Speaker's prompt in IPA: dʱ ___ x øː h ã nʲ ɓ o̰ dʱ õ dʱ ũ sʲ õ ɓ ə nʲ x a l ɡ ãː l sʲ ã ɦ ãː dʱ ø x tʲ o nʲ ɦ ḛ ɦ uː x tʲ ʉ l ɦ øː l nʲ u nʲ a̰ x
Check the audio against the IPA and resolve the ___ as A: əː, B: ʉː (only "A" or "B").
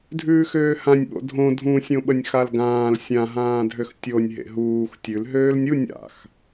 B